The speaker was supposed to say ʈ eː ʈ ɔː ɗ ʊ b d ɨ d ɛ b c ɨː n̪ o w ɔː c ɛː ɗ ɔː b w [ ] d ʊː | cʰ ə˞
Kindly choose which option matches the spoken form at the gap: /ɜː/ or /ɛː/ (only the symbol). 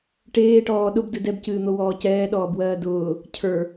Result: ɜː